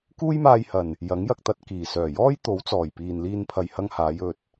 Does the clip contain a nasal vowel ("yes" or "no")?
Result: no